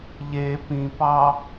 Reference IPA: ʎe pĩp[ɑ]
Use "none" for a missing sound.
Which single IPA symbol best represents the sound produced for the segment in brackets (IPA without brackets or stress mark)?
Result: ɑ